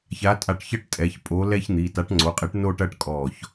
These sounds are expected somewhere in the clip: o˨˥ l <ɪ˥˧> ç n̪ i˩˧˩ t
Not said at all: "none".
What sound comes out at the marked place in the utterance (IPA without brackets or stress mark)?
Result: ɛ˥˧